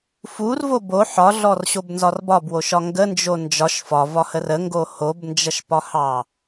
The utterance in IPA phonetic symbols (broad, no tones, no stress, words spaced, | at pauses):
furvo bo ħɒɮɔrɕobnzɒr bɒbwoʃɒ ŋɡənd͡ʒo nd͡ʒɒʃ fɒvɒhər əŋɡo hobnd͡ʒʌʃpɒhɑ